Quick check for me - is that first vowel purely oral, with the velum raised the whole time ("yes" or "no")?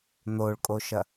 yes